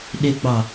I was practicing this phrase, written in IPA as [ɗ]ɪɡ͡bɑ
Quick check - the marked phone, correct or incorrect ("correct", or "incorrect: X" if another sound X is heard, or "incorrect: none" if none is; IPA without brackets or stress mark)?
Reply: correct